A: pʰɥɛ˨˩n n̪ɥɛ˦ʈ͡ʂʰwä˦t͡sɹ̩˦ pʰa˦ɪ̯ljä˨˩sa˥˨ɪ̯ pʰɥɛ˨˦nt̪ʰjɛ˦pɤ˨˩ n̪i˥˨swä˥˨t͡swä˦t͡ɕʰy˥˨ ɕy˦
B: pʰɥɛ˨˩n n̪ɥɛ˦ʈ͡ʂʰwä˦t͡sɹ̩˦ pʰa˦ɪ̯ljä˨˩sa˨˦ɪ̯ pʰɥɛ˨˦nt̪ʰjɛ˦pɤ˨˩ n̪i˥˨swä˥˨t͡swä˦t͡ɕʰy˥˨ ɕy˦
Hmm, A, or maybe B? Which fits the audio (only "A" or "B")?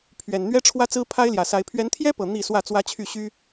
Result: B